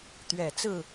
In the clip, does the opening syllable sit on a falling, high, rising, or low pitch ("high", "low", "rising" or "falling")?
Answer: low